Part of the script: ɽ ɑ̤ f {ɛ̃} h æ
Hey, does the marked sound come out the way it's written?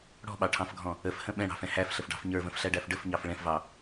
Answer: yes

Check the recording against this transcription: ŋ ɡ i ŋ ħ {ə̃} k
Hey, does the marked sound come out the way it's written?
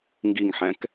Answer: no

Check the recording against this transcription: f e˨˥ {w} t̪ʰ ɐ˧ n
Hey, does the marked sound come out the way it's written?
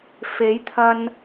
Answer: no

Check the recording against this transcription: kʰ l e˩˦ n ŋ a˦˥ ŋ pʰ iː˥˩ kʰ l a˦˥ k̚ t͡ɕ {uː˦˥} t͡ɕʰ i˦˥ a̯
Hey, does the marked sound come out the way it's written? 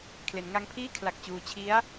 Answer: yes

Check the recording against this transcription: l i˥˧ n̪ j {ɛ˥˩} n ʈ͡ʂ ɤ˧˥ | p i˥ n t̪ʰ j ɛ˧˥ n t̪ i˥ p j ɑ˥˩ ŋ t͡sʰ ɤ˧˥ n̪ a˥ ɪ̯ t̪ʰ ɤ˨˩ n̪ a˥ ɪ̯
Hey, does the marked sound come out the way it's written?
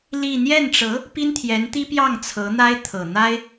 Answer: yes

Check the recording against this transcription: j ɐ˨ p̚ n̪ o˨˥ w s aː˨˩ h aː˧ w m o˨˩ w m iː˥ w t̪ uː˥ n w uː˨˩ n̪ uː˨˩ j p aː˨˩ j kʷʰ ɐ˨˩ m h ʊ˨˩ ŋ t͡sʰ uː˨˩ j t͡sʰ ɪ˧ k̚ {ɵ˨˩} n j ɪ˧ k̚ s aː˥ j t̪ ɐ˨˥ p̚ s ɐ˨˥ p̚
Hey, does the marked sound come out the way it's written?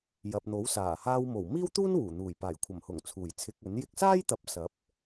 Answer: no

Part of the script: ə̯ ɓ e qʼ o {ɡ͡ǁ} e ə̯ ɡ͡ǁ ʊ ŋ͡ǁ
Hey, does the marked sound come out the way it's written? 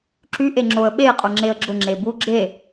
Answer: no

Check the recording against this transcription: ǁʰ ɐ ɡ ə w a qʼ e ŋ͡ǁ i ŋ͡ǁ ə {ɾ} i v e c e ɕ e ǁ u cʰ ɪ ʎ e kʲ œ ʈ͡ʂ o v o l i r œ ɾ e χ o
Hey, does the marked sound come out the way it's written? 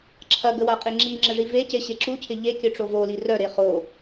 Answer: no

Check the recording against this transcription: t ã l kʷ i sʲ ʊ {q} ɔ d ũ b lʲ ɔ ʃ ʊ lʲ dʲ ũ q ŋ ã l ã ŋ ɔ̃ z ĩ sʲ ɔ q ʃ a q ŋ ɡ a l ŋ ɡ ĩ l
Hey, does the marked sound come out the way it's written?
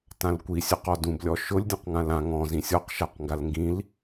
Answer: yes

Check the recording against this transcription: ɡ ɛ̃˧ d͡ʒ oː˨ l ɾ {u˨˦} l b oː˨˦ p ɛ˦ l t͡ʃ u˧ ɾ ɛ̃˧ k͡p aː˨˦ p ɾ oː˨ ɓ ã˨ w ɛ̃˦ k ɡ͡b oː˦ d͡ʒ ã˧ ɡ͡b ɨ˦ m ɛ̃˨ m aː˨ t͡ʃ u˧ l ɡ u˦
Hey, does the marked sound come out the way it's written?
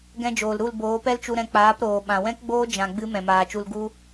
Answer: no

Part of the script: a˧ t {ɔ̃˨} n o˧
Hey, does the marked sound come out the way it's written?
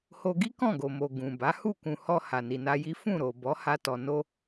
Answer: no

